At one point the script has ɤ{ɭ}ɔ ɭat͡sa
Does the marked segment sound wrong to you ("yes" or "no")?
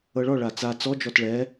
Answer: no